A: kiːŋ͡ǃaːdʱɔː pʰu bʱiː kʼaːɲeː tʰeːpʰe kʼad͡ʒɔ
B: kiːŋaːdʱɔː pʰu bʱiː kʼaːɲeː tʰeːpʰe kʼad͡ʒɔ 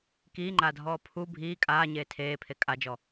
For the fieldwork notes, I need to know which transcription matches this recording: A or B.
A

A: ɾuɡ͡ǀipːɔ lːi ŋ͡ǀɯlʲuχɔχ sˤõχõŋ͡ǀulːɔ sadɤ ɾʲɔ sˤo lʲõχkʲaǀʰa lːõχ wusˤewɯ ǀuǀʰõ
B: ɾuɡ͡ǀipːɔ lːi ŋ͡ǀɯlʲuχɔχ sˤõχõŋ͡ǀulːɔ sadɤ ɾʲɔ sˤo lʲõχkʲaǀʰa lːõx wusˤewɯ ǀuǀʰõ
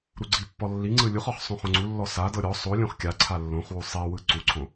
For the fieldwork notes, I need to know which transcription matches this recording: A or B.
A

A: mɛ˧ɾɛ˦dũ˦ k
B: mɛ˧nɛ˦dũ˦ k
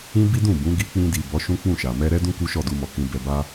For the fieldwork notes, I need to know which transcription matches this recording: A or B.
A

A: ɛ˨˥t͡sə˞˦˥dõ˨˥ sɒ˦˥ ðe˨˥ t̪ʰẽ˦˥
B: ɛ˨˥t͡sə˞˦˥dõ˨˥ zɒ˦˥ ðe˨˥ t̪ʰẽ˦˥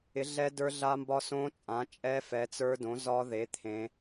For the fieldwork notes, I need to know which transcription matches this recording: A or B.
B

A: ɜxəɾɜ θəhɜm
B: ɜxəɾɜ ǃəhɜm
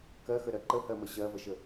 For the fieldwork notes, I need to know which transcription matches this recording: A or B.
B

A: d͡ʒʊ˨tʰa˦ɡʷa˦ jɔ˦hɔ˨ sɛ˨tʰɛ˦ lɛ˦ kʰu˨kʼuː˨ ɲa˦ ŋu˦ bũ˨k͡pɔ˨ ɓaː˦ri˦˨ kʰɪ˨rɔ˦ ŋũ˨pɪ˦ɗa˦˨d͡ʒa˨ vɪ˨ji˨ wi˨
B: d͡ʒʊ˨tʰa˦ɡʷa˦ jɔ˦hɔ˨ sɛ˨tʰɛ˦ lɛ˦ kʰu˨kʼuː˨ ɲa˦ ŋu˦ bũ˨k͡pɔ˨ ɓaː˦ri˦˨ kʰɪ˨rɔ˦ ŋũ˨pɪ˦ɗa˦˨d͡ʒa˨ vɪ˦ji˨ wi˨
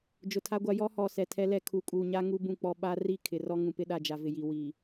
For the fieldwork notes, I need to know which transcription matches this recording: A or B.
A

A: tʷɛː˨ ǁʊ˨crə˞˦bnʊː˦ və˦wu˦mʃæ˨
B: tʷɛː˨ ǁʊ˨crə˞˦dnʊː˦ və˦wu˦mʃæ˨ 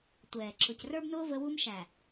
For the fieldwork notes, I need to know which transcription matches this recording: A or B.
A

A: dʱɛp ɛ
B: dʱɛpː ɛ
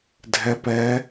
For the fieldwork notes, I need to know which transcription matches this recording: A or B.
A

